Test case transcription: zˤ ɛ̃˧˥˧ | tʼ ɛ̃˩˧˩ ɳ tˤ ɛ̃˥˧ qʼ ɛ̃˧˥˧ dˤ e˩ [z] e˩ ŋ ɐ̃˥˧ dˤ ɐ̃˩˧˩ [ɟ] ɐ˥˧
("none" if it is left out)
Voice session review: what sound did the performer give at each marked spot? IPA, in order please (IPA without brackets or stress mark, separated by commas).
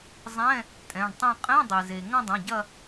z, ɟ